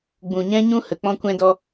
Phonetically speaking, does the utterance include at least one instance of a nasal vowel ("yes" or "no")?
yes